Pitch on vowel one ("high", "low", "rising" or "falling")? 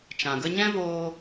low